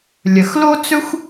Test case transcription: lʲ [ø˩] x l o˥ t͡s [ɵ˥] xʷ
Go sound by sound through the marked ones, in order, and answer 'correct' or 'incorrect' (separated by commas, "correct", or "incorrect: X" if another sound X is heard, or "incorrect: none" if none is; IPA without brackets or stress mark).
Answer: incorrect: ə˩, correct